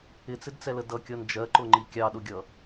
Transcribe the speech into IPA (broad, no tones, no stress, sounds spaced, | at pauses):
ɪ t͡s ɪ d t͡s ɛ l ə d ʌ kʲ ʌ n d͡ʒ ɜ ǃ ʊ ŋ͡ǃ i kʲ ɑ ɗ ʊ ɡʲ ʌ